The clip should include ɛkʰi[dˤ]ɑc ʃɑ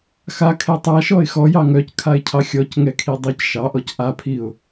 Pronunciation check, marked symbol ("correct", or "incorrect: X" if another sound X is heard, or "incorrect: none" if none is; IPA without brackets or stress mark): correct